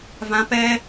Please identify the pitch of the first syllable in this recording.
high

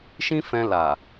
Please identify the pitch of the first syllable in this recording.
high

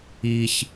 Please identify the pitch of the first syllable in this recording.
high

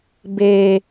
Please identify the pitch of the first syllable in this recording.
low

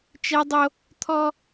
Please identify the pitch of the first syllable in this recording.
high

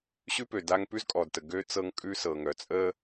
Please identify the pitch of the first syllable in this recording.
high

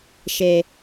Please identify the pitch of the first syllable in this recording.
low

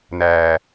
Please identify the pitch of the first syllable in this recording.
low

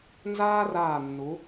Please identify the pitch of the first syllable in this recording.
high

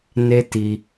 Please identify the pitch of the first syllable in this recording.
high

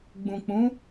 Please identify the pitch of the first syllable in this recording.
low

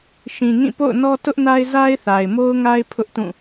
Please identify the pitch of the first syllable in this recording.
low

